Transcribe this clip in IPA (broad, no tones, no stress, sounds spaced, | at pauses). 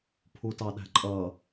pʰ u t ɑ ɗ æ̤ ǃʼ ʌ